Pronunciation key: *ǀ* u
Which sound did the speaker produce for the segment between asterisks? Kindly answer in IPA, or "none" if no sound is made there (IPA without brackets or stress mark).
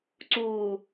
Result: ǀ